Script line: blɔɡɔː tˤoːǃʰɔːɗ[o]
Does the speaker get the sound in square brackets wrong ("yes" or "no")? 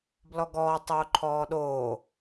yes